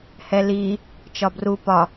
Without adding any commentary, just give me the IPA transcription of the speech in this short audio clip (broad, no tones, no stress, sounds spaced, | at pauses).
h ɛ l i | t͡ʃ ɒ b r u p ɒ